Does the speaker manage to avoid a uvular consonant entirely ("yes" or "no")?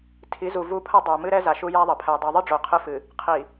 no